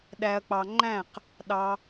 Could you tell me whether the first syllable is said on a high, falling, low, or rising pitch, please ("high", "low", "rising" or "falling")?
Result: low